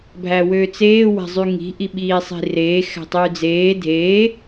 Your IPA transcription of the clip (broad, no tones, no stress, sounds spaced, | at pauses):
bʱ æ w øː t͡s eː w æ̤ zˤ y ŋ i̤ ʔ i ɓ iː sˤ i̤ r eː x æ̤ tˤ yː d͡z eː dʱ eː